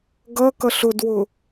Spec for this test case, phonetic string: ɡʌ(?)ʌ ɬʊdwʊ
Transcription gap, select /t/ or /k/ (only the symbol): k